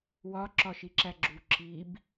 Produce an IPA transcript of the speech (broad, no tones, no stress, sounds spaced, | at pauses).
w ɒ ǁ ɒ ʃ i ǁ æ ɡ͡ǁ u ǁ i b